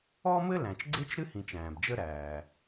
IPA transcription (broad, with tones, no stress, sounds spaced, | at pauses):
ɔ˥ m ɘ˥ l æ̃˩ t͡ʃ ɡ͡ǀ e˥ t͡ʃ ɾ ɨ˥ h ĩ˩ t͡ʃ æ̃ː˩ b d͡ʒ ə˥ ɾ æː˩